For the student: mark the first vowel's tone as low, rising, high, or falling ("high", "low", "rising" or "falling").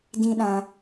high